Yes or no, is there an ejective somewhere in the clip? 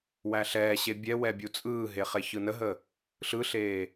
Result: yes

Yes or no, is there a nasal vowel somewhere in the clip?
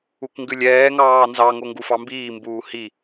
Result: no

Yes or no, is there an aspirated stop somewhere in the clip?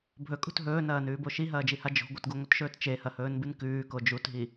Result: no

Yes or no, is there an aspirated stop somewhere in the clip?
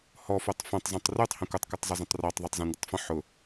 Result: no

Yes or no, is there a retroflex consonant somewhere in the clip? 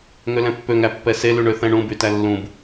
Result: yes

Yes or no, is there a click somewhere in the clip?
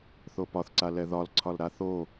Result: yes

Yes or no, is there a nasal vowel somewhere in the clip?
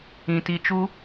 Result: yes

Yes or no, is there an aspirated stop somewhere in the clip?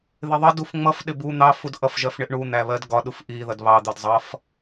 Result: no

